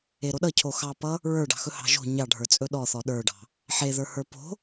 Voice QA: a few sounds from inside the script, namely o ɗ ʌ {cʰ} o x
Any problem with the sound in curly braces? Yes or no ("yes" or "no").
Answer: no